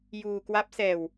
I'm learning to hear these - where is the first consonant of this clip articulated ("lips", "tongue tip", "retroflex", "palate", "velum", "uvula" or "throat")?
palate